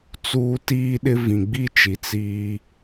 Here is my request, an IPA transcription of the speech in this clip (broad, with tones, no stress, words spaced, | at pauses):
t͡suː˦ tiː˦ɗɪ˦ vĩ˨ɡ͡bi˦t͡ʃi˨ t͡siː˦